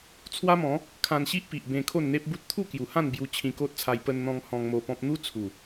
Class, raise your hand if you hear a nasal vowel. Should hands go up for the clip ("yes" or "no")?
yes